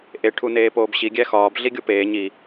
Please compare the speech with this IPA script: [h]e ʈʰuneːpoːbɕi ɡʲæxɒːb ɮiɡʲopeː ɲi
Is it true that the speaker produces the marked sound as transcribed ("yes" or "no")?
no